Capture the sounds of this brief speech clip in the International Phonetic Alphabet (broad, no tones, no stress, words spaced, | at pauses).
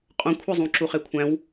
qʼũkʷʰezˤũ ǁuχekʷʰæ̃w